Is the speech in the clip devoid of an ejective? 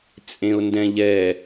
no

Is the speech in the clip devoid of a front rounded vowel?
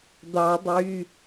no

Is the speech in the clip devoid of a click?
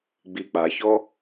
yes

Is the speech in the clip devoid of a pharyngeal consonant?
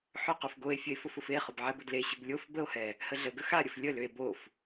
no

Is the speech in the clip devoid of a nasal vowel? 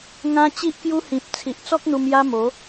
no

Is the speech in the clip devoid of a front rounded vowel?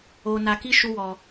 yes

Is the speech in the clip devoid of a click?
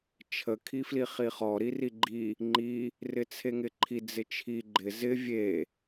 no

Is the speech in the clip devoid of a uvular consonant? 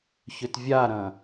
yes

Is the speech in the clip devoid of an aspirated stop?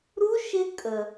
yes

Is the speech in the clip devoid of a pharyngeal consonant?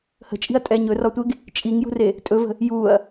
yes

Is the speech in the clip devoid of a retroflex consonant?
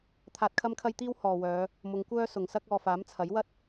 yes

